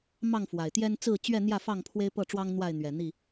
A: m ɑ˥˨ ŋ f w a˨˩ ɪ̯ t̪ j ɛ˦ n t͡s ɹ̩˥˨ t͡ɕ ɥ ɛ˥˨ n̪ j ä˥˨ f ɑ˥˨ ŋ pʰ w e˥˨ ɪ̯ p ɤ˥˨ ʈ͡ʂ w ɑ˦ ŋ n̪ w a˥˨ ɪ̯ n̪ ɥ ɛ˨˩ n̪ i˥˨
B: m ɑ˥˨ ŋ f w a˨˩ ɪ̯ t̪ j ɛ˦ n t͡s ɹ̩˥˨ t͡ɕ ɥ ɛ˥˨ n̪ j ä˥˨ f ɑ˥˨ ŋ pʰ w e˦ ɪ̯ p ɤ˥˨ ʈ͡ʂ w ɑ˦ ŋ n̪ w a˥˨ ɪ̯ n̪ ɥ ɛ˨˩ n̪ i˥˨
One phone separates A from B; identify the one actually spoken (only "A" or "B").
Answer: B